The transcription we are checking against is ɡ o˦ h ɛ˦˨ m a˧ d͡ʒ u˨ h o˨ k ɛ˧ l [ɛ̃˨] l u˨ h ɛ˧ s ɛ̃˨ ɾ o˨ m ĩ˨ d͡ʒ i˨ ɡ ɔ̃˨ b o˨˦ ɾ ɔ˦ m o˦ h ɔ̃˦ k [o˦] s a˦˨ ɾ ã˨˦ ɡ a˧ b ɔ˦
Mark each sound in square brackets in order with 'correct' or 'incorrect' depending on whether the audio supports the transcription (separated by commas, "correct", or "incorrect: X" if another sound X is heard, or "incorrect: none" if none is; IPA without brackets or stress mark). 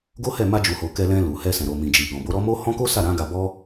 incorrect: ɛ̃˧, correct